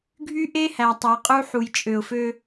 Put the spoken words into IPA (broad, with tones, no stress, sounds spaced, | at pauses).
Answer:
ɡʱ y˦ ʔ e˦ h æ˨ tˤ æ˨ qʼ u˦ ħ u˨ j t͡ʃʼ ø˨ ʊ̯ f ø˦